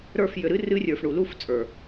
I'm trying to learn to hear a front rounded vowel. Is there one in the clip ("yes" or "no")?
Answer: yes